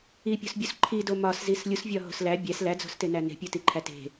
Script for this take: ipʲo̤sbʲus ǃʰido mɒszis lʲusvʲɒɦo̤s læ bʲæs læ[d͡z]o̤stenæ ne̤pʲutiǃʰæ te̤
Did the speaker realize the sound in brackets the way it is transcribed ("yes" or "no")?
yes